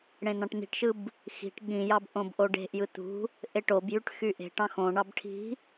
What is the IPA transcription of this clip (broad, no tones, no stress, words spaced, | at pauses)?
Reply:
ɽẽn̪ɑ̃ʈn̪i̤ʈʃɯb | xi̤ʈ ɠĩjɑb ʔõbʔoɖe̤ʔjɯ t̪ṳ | ʔeʈobjyʈ xyʔe̤ʈɑ̃ xõɳɑb ʈʰi̤